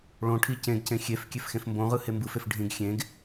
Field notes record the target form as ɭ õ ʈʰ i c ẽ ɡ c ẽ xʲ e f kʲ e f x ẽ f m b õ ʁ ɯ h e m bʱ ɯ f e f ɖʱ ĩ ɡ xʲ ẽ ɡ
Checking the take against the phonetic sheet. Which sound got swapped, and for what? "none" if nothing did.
bʱ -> b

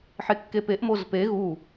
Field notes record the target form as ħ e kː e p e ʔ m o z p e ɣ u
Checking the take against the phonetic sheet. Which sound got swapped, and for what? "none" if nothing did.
none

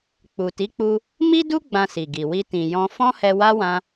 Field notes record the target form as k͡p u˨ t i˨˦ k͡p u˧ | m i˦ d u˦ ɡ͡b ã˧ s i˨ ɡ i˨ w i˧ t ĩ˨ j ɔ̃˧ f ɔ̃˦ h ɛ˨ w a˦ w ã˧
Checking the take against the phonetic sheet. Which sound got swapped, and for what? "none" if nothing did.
ɛ˨ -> ɛ˧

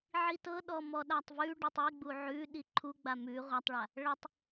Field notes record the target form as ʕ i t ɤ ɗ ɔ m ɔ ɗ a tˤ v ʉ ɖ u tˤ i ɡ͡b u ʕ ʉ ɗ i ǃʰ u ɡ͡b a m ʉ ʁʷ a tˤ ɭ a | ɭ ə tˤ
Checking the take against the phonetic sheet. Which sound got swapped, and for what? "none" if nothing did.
none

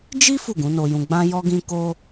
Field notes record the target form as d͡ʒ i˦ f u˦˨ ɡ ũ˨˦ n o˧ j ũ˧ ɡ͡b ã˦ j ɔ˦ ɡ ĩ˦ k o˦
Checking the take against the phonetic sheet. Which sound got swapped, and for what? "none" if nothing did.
none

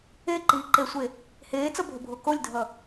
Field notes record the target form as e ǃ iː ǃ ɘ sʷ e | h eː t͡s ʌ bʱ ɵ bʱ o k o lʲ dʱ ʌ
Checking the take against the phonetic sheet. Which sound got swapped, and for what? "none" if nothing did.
ɘ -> e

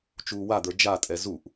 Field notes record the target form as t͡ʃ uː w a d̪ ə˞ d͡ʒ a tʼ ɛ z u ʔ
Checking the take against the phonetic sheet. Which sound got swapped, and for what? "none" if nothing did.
none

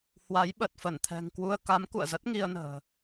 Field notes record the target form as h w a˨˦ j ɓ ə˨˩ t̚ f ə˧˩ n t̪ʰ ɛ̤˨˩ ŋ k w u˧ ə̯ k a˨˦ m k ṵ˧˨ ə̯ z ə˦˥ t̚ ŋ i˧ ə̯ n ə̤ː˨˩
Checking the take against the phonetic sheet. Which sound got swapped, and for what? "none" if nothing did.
none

